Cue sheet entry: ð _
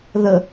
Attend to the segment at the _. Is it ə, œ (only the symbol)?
ə